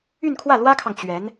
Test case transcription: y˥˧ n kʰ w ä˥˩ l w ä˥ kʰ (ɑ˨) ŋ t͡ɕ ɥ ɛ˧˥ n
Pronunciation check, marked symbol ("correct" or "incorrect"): correct